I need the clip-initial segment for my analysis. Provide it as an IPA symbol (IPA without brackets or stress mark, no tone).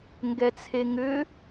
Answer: ŋ